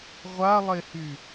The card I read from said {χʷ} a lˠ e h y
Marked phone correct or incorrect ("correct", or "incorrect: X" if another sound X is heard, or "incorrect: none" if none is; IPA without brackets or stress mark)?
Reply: incorrect: ʁʷ